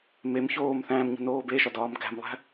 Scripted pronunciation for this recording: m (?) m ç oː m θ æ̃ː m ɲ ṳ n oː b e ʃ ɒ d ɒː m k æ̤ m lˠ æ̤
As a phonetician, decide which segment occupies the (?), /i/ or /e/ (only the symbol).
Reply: e